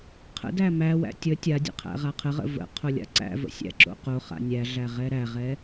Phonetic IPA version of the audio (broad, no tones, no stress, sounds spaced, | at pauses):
qʰ ə̰ d æ m æ w æ̰ tʲ ə tʲ a dʲ ə̰ qʰ æ̰ ʁ a qʰ ə ʁ ə̰ v ə̰ qʰ o lʲ a̰ ǀ æ̰ v ə̰ sʲ æ̰ ǁ o̰ q o χ a̰ nʲ æ ɮ æ ʁ ɛ ɾ æ ʁ ɛ